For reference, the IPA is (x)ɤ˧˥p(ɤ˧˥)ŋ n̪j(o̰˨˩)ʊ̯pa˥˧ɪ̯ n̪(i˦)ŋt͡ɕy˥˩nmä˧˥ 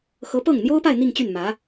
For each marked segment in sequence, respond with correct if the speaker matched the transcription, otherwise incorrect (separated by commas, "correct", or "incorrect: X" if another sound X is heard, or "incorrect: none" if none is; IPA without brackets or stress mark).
correct, incorrect: ɤ˥˩, incorrect: o˥, incorrect: i˥˧